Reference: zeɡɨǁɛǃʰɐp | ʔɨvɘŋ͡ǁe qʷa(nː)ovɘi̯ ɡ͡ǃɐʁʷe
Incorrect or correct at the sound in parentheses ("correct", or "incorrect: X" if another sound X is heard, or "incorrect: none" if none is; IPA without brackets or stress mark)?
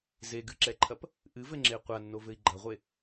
correct